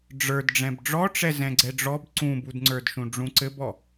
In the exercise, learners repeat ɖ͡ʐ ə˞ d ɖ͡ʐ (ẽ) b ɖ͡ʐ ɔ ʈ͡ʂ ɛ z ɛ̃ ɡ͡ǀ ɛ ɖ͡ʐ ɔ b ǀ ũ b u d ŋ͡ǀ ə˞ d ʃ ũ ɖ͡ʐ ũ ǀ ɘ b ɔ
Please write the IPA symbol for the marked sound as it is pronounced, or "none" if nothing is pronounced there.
ɛ̃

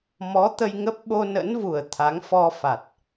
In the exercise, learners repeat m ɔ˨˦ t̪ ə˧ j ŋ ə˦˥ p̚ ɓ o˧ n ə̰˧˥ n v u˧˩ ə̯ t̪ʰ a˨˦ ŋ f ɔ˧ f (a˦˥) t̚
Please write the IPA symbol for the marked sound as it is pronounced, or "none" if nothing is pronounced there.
a˨˩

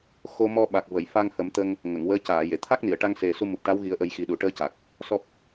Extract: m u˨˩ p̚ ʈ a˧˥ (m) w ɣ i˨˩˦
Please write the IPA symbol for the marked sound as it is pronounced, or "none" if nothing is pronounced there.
none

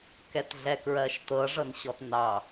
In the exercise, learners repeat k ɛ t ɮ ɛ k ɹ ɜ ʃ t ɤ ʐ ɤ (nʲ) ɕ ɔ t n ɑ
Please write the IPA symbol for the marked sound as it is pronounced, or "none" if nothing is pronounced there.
n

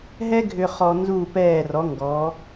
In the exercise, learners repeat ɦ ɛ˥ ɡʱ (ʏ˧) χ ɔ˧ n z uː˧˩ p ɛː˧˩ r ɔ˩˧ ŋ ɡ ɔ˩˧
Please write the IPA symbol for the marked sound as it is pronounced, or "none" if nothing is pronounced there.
ʏ˧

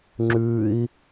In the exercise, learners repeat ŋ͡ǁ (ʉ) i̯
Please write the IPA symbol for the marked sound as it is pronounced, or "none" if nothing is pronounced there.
ʉ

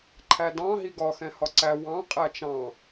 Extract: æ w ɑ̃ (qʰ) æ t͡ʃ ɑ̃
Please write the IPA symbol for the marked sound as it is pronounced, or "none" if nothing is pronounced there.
qʼ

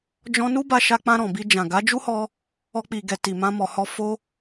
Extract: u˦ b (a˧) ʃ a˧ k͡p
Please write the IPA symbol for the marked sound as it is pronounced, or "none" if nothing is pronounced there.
a˧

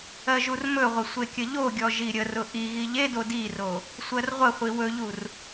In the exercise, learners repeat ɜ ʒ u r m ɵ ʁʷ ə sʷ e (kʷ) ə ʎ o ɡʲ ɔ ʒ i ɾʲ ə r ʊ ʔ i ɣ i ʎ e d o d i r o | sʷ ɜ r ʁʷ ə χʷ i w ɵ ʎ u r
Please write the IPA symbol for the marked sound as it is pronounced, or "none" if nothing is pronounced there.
kʲ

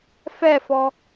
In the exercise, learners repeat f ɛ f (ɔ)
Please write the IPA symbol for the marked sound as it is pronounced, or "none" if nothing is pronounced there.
ɔ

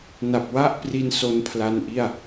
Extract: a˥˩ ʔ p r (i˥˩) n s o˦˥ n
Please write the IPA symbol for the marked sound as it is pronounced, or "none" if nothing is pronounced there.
i˧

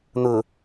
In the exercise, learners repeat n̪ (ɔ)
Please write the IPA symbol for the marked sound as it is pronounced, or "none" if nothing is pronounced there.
ʊ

